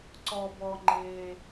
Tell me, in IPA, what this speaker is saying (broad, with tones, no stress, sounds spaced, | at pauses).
ǀ ɔ˨ b ɔ˨ ŋ͡ǃ e˨